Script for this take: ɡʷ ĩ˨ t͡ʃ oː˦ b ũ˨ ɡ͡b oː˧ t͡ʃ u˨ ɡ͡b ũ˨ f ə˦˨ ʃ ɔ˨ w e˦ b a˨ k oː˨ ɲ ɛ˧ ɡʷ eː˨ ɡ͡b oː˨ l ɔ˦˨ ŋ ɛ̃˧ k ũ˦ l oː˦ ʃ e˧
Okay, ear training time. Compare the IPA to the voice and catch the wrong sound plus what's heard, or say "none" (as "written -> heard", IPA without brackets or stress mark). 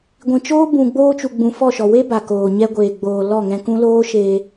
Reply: ə˦˨ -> ɔ˦˨